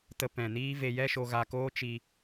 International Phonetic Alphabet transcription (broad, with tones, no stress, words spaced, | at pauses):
tə˧pɛ̃˨niː˦ve˧ jɛ˦ʃo˧ɣa˧ koː˦t͡ʃi˧